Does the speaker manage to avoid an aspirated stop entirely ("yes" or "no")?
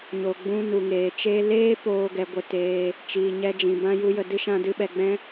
yes